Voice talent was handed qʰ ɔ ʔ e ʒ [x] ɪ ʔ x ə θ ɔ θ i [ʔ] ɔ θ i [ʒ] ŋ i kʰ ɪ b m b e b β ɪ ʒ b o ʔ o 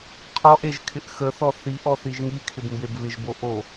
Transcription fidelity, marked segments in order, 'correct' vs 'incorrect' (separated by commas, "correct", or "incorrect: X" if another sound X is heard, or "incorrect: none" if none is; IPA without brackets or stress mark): incorrect: kʰ, correct, correct